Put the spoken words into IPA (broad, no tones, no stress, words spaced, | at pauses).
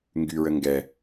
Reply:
ŋɡyɹə ŋɡɛ